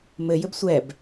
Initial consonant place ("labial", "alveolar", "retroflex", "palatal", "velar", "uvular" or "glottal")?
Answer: labial